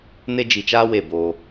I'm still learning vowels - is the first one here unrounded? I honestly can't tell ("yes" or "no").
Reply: yes